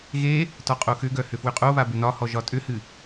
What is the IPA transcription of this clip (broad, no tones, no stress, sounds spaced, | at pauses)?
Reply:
ɣ e | t ɒ qʼ o x ʏ ɡ œ h ʏ f w ʏ qʼ o β a b ʏ n ɒ h ɔ ʒ ɒ tʼ ʏ h ɨ